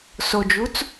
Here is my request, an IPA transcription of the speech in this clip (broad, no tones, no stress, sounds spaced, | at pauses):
s o d͡ʒ u t͡s